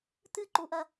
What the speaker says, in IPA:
t̪ɨǃuʔɐ

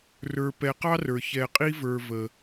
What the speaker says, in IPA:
rə˞˨pɛ˨qɑ˥ rə˞˩çɛ˨ qʼi˥və˞˨ və˩

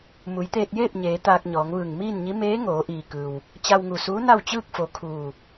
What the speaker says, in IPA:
mu˩˧jt̪eː˧t̚jeː˥˨p̚ɲeː˩˧ t̪aː˧k̚ɲɔː˩˧ŋʋɯː˧˩ŋ miː˥˨nɲi˧˥ meː˧˥ ŋoː˩˧ʔiː˩kɯː˩w | t͡ɕa˧wŋu˧˩suː˧˥ na˥˨wt͡ɕɯː˥˨k̚fo˩˧ kʰuː˧˩

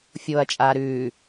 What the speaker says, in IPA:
fʲoːɐ̯t͡ʃʼaːɾʉː

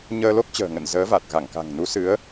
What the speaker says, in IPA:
ɲəː˧lo˦˥k̚t͡ɕə̤ː˨˩ŋə̰˧˨n zəː˨˦va˨˩t̚ɣa˧˩ŋka̤˨˩ŋ nu˨˦sɨ˨˦ə̯

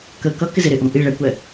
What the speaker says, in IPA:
kə kʌkɪ zɪɾɪʔũ ʔi ɭɛkʷɛ

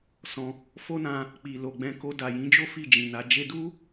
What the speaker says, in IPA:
sɔ̃˧ | fo˦nã˧ | k͡pi˨lo˨ɡ͡bɛ̃˧ ko˧da˨jĩ˨˦d͡ʒo˦ fi˦˨d͡ʒĩ˨na˨˦ d͡ʒe˧du˦

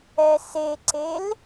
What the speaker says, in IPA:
ɛseǀel

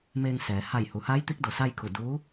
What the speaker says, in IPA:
meː˧ŋ sɛː˩˧ ha˧˩jhu˩˧haː˧˥j t̪i˧˥k̚do˩sa˥˨jkʰu˧˩ duː˧˥

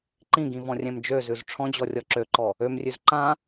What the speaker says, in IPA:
ǃĩɡĩvɔ̃rʲɛ̃m d͡ʒøzʉz ʈ͡ʂʰɔ̃d͡ʑɔrʲɔ ǁøǃɔ | ømrʲʉz ǃã

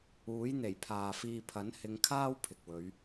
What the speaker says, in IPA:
uː˨˥j n̪e˨˩jpʰaː˨fiː˧ pʰɐ˨˥nhɪ˨˧ŋkʰaː˥w pʰɪ˨k̚wɵ˨˧ɥ

